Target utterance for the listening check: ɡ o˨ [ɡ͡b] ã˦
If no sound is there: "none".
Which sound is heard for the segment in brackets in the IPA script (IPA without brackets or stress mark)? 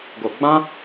ɡ͡b